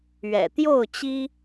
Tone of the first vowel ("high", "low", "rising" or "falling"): low